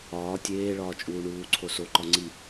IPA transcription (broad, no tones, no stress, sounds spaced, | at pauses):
ɒː tʲ eː ɭ ɒː t͡ʃʼ uː ɳ uː ǀʰ o s o ǃ ɒ ŋ͡ǀ i